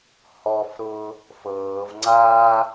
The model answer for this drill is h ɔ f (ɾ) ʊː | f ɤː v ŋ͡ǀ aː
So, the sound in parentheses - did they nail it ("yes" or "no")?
yes